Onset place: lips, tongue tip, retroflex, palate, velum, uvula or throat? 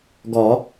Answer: velum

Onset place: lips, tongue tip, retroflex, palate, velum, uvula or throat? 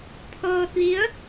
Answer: lips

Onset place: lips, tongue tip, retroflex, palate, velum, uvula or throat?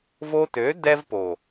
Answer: lips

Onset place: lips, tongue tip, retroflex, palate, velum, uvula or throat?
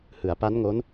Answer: throat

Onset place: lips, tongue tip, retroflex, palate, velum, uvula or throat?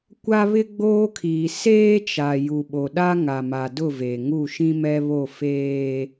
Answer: velum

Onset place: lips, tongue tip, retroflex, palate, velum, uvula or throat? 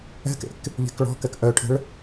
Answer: velum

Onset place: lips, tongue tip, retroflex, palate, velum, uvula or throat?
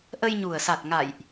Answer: throat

